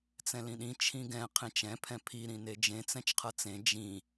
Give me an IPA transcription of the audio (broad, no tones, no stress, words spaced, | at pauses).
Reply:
t͡sɛ̃lĩɗĩ t͡ʃʰĩɡɛ̃ qʰẽt͡ʃɛ̃ pʰɛ̃pʰi ɾĩned͡ʒẽ t͡sɛ̃t͡ʃqʰʌt͡sẽ d͡ʒĩ